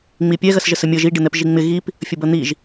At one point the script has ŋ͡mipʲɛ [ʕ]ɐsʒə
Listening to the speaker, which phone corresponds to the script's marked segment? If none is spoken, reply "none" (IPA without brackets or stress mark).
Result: ɣ